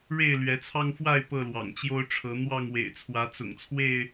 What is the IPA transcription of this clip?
ɻe˥˨ɪ̯lɥɛ˨˦t͡sʰɑ˦ŋfwa˥˨ɪ̯ pɤ˥˨lwɑ̰˨˩ŋt͡ɕjo˦ʊ̯ʈ͡ʂʰɤ˨˦ n̪wɑ˥˨ŋwḛ˨˩ɪ̯t͡sʰwä˨˦ t͡sʊ̰˨˩ŋt͡sʰwe˥˨ɪ̯

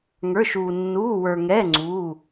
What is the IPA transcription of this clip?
ŋə˞˧˥˧ʃuː˧ nːuː˧˥˧wə˞˧ŋɛː˧˥˧ ŋ͡ǀuː˧˥˧

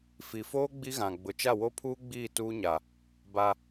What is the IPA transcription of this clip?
fi˨foː˦ ɡ͡bi˦ɣã˨ ɡ͡bʊ˨t͡ʃa˦˨wo˦pʰuː˦ ɡ͡biː˦˨tuː˦ɲa˨ | ba˦

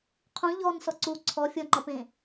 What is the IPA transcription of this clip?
qʰũ ʎɔn sɔǀu ǀʰɔ fʲɔŋ͡ǃɒpẽ

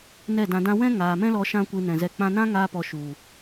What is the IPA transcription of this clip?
nɛ˦˨dã˧dã˦ wɛ̃˦ ŋaː˨mɛ̃˦lɔ˧ ʃã˦kʷɨ˧nɛ̃˨zɛ˧ k͡pã˧nã˦ŋaː˧pɔ˨ ʃu˨

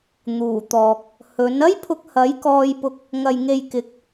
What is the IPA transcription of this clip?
n̪uː˨˩t̪ɔː˨k̚ | hɵ˨˥n ɐ˥jpʰʊ˧k̚hɐ˨˥j kɔː˧jpʊ˧k̚ | ŋɐ˨jŋe˨jkɪ˨˥k̚

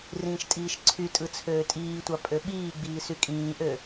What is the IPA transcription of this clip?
rĩːʃtʼiːʃǀʰytʼɯ t͡sʰøːtʼiːtʷɑ pʼøɓiːɡ͡biː sykʼĩːʔø

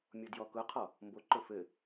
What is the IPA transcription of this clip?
mʲodjɔkʊqʰɔ | mboǃʊ fɘ

